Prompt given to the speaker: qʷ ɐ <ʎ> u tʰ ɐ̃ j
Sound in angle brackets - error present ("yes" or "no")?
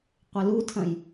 yes